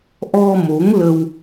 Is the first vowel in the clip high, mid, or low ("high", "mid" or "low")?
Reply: mid